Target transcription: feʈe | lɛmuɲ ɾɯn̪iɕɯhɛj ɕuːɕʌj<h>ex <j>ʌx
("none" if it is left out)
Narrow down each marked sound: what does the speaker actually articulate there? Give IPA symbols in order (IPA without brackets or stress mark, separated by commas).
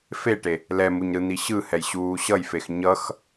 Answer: f, ɲ